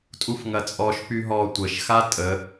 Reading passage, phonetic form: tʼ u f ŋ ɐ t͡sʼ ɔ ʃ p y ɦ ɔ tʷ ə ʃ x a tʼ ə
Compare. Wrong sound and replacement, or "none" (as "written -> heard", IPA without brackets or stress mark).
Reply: none